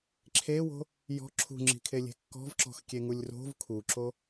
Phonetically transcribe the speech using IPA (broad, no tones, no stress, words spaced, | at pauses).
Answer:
ǁʰewo̤ | jɔ̤ ǁʰṳŋ͡ǁi̤kʰelʲe̤ kːɔ̤vǁɔ̤xkʲeŋulʲ ro̤v kʰuǁo